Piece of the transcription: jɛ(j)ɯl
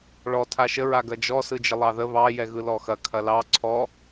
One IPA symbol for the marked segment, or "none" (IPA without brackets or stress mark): ɣ